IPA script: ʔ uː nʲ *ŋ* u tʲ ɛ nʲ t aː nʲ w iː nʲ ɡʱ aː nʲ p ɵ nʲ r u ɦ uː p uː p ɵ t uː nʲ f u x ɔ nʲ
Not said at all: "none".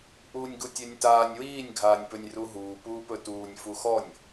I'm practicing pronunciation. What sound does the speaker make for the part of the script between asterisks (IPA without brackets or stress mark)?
ɡ